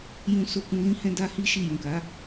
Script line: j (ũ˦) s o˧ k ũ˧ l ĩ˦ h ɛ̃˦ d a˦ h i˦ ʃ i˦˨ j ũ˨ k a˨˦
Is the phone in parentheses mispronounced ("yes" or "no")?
yes